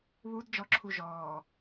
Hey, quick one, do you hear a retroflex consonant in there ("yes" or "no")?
no